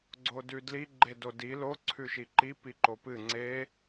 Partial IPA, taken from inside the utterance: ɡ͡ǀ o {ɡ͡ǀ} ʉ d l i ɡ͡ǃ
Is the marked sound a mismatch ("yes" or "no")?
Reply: yes